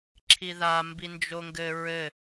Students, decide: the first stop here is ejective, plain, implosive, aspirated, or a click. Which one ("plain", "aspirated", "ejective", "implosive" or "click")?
click